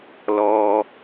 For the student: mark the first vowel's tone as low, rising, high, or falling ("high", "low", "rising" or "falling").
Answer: low